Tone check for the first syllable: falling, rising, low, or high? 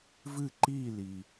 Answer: falling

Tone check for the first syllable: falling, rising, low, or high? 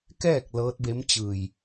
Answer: falling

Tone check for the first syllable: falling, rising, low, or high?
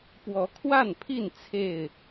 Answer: rising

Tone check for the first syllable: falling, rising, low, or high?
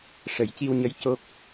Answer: low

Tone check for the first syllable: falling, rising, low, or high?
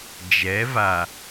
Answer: rising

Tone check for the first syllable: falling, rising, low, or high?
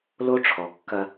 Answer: high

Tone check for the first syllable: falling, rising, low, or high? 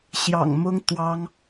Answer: low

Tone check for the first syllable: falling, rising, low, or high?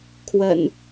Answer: low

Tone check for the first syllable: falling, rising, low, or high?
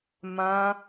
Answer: high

